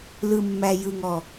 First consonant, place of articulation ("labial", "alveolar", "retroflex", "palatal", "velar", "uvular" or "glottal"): alveolar